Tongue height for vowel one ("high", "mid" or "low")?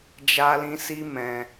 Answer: low